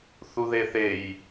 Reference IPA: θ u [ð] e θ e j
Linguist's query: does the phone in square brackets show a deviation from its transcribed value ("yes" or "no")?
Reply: no